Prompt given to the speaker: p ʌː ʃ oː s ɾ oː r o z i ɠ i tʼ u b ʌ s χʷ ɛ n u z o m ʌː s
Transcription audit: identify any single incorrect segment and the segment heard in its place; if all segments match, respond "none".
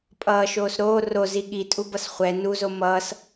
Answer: p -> pʼ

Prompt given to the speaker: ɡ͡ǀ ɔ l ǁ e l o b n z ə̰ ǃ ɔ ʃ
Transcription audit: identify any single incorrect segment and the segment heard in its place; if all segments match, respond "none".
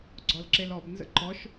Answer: o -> ɔ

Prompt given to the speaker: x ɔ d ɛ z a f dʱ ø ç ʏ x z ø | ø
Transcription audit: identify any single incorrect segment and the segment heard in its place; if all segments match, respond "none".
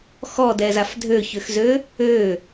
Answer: none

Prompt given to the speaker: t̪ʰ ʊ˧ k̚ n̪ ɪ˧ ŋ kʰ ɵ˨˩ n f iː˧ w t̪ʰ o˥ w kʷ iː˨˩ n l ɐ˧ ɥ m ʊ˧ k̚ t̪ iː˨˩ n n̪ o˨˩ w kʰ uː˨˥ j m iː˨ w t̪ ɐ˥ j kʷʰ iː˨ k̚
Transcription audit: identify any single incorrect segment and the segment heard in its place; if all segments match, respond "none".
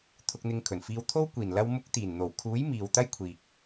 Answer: ɥ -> w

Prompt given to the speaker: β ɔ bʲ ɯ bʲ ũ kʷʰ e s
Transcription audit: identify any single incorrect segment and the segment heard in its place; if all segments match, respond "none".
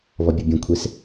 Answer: none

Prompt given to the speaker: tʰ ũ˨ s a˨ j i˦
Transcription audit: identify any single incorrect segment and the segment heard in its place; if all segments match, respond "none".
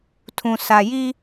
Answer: none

